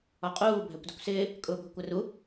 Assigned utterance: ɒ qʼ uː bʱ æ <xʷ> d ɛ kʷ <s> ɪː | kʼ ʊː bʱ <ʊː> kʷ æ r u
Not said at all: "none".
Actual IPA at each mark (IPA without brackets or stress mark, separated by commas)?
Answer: kʷ, s, ʊ